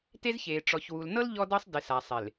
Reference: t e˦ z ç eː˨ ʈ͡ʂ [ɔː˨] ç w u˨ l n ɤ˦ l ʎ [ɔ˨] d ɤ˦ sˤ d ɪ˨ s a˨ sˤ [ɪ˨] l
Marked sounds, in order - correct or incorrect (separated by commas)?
incorrect, incorrect, correct